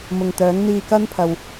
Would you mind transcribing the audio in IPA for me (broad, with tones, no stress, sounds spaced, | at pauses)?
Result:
m ʊ˨ ŋ t̪ œː˨˥ ŋ n̪ iː˧ k ɐ˥ n pʰ ɐ˨ w